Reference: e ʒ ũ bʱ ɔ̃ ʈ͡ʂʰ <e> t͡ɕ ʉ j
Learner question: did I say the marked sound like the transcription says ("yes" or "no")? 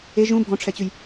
no